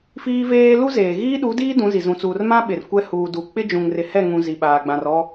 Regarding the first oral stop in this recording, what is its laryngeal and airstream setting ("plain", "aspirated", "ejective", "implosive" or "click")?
implosive